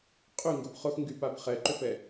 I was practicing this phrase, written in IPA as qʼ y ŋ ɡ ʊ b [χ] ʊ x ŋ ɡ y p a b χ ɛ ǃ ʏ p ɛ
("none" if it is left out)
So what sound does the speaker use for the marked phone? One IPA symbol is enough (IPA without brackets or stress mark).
χ